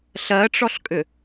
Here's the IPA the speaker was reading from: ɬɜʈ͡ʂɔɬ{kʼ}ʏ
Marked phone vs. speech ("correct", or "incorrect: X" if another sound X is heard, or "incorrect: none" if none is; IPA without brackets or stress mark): correct